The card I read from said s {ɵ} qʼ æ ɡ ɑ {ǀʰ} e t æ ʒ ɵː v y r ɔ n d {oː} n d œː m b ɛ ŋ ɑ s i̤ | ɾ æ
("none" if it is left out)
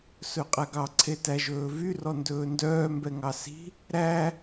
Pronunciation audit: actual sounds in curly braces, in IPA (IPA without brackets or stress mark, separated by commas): ɵ, ǀʰ, ɵː